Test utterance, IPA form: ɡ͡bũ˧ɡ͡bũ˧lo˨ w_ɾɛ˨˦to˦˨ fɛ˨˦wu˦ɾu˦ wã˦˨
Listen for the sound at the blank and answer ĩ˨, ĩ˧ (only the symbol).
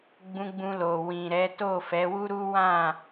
ĩ˨